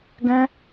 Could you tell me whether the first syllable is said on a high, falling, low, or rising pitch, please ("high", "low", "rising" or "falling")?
high